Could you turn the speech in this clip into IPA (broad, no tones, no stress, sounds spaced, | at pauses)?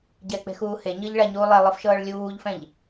ɟ ɛ k͡p e̤ x uː h e ɲ ɤ ʎ ɭ a ɲ u lˠ e lˠ ɯ f ʃ ɤː ɭ lʲ uː ʎ f ɛ̃ ʎ